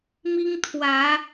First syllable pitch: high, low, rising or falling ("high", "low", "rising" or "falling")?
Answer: high